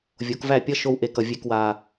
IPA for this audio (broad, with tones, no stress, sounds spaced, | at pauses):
vʲ o˨˦ k v æ˦˨ pʲ ʌ˦ ʃ o˧ w ʔ e˨ k ʌ˨ vʲ e˨ k w a˨